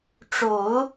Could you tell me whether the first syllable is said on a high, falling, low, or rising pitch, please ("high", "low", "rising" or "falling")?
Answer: low